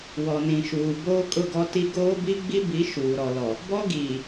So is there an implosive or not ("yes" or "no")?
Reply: no